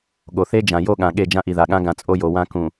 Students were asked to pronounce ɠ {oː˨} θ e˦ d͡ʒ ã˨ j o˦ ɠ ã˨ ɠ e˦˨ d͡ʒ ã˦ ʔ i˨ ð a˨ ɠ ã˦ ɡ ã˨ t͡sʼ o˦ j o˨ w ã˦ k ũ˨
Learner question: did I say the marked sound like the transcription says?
no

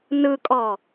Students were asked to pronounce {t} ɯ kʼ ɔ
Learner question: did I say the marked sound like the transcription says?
no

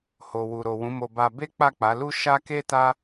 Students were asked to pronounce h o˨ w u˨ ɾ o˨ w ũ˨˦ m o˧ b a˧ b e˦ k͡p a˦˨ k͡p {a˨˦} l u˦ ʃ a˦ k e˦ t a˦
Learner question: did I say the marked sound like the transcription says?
yes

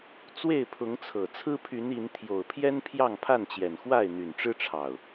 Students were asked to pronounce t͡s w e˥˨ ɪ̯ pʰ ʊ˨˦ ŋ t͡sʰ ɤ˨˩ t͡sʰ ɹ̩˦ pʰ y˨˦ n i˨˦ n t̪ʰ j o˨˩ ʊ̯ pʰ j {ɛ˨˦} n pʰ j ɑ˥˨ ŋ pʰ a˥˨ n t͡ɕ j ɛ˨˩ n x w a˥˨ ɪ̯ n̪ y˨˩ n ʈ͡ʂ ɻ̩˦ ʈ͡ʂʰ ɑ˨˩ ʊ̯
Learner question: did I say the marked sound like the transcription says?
no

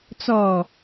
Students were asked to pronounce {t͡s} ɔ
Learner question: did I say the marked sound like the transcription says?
yes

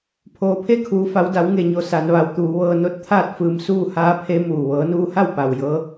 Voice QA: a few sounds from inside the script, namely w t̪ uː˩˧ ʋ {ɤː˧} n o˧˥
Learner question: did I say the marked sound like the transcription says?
yes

